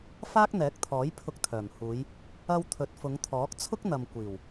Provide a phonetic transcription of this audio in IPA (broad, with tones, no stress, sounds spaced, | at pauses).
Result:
f aː˥ k̚ n̪ ɛː˨˥ k̚ t̪ʰ ɔː˨˥ j pʰ ʊ˧ k̚ t̪ʰ œː˨˩ m h uː˨˧ j | ɐ˧ w t̪ʰ ɵ˨˥ t̚ f ʊ˨˧ ŋ t̪ʰ ɔː˨˥ k̚ t͡sʰ ʊ˥ k̚ n̪ ɐ˨ m kʷ iː˨˩ w